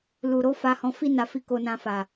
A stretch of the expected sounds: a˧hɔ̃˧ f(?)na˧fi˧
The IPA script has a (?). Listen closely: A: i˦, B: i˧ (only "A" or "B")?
A